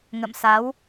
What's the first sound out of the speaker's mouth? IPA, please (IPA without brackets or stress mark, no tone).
ŋ